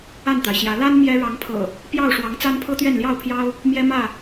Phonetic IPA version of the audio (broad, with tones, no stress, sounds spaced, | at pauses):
a˥˨ n t̪ a˩ ɪ̯ ɕ j ä˨˦ l a˦ n m j ɛ˦ ɻ ɑ˨˦ ŋ pʰ ɤ̰˨˩ | p j ɑ˥˨ ʊ̯ ʂ w ɑ˨˦ ŋ t͡s a˦ n pʰ ɤ˦ t̪ ɥ ɛ˥˨ n l j ɑ˥˨ ʊ̯ pʰ j ɑ˦ ʊ̯ | m j ɛ˦ m ä˥˨